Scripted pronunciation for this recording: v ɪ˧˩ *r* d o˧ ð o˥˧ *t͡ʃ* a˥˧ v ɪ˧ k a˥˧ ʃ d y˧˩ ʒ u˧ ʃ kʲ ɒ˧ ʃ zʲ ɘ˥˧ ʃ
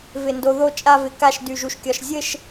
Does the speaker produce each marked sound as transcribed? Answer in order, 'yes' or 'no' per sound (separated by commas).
no, no